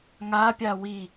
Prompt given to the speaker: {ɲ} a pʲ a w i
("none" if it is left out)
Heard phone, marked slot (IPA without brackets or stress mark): ŋ